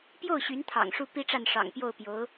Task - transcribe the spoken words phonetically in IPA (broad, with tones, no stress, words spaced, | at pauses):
pjo˥˩ʊ̯ ɕy˧˥nt̪ʰɑ̰˨˩ŋ ʂu˥˩pi˥ʈ͡ʂa˥˩n ʂɑ̰˨˩ŋpjo˥˩ʊ̯pjo˧˥ʊ̯